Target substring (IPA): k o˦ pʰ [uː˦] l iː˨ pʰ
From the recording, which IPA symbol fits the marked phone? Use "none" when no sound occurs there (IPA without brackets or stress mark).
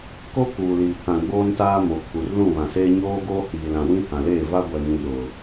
uː˨